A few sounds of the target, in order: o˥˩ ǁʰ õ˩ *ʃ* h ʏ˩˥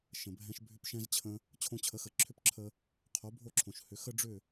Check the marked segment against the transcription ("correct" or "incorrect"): correct